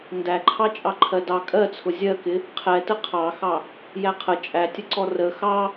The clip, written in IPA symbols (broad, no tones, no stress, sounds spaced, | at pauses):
n d æ ǃʰ ɑ t͡ʃʼ ɑ ǃʰ ɜ d ɑ kʼ ɜ t͡sʰ ʊ zʲ ɜ k ɪ | qʰ ɛ t ə qʰ ɑ x ɑ | j æ qʰ ə t͡ʃʼ æ tʲ ə ǀ ɔ r ə x ɑ